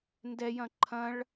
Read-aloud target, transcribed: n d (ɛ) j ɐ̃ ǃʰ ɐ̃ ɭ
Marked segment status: correct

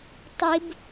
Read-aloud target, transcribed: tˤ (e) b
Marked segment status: incorrect: i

